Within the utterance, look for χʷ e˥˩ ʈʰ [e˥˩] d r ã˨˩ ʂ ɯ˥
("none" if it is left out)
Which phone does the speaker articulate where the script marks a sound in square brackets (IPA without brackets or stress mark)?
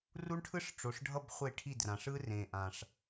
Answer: i˥˩